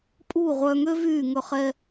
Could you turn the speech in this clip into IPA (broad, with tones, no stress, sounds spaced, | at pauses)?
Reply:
pʼ uː˦˨ ʁʷ œː˧ ŋ ø˦ v yː˦˨ ŋ ɵ˧ χ ɛ˧